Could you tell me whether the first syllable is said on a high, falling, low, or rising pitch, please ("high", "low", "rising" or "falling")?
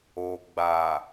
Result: low